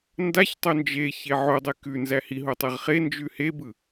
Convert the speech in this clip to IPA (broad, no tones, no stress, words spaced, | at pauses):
ndaçtˤo nd͡ʒe çeʕodˤe kʉ nzæhiɦo tˤeʁχend͡ʒʉ hebɯ